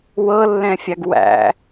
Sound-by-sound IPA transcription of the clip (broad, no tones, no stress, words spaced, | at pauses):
wɤlːɛ̃fʲaɡ wæ̰